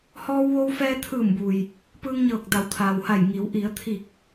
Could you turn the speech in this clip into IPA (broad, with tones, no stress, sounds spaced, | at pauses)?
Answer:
h ɔː˧ w ʋ o˧ w f ɛː˧ t̪ʰ ɯː˧˩ m b u˩ j | p ɯː˧ ŋ ɲ ɤː˧˩ k̚ d a˩˧ w t̪ʰ aː˩ w h a˧˩ j ŋ i˩˧ w ʔ i˩˧ ə̯ t̪ʰ i˧˩ k̚